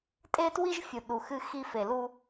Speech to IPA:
tʼ e˦ t w i˦ ʒ fʲ u˨ ɗ u˨ x ɨ˦ x i˦ f e˨ l u˦

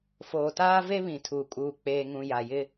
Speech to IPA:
f oː˨ t aː˦ v e˦ β ĩ˨ tʰ uː˨ kʼ uː˨ k͡p eː˨ ŋ ũ˨ j a˨ j ɪ˦

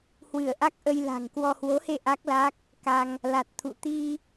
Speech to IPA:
h w ɨ˧˩ ə̯ ʔ a˦˥ k̚ ʔ ə˧ j l a̤˨˩ ŋ k w ɔ˧ h w o˨˦ h e˧ ʔ a˦˥ k̚ l a˦˥ k̚ | k a˧ ŋ | l a˨˩ t̚ t̪ʰ ṵ˧˨ t̪ i˧

